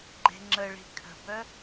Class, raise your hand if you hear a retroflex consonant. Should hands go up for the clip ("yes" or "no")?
yes